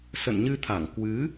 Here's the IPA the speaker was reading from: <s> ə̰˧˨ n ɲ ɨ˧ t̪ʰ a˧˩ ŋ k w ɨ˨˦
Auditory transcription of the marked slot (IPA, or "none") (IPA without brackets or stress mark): s